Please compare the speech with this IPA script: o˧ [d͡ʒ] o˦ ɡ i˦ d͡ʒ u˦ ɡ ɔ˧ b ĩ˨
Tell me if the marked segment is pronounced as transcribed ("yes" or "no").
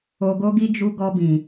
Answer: no